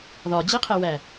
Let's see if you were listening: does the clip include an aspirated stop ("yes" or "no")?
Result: yes